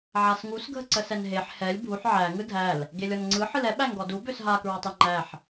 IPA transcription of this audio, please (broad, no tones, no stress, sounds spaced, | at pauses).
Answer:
ʕ a s ŋ u s ɡʱ ə ǀ ə s ɛ n ɦ e ħ h ɛ lʲ bʱ u ħ ʕ æ ŋ ɯ dʱ æ l | ɡ e lʲ ɔ n ŋ͡ǀ ɯ ħ ɯ l ɛ ɓ æ ŋ ɡ ɔ d u b ø s ɦ a k ɹ ɔ tˤ e ŋ͡ǃ æ ħ